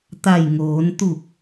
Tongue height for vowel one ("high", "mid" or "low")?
low